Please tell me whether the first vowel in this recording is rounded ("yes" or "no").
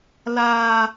no